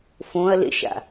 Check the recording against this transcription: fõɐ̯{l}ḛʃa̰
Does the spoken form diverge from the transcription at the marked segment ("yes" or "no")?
no